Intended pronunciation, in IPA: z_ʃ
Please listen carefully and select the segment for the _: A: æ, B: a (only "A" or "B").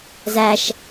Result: A